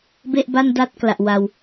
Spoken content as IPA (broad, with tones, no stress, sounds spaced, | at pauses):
b e˥˩ ʔ b a˥˩ n d a˦˥ t̚ k l a˨˩ ʔ w a˧ w